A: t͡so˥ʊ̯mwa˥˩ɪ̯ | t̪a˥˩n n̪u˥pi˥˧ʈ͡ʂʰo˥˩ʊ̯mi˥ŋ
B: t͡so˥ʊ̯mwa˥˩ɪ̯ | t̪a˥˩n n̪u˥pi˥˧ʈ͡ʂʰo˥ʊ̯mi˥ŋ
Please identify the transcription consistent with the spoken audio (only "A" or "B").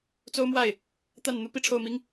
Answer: A